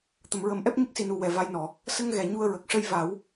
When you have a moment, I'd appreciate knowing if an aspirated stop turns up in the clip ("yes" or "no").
no